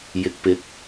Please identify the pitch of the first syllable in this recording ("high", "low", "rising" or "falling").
low